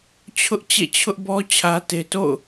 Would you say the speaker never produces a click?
yes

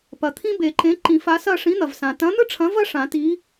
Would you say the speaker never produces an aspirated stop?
no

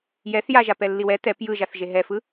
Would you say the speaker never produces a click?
yes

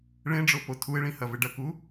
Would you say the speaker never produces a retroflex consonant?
no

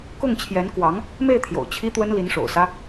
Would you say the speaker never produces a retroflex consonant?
no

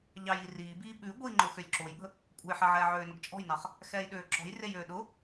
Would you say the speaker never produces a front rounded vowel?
no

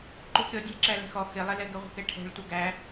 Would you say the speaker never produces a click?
no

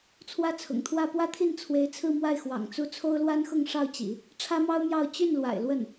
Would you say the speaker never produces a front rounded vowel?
no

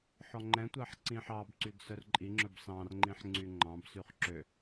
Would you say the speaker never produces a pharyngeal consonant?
no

